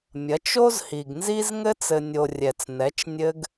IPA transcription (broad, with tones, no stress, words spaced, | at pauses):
mʲɐ˨˦t͡ʃo˦zhi˨ɡnzi˦z ŋɘ˦t͡sɘ˨nʲo˨ rʲɛ˨t͡snɛ˨˦t͡ʃ nʲɘ˦ɡ